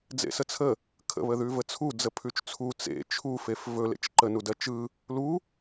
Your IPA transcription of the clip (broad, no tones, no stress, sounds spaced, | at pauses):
d͡z ḛ s ə t͡sʰ ə | kʰ ə̰ β ə ð ʉ v ə t͡sʰ u d͡z ə pʰ ʉ t͡ʃ t͡sʰ u t͡s ḛ t͡ʃʰ u f e f v ɵ l ḛ t͡ʃ ǃ ə n u d ɜ t͡ʃ ɯ | l u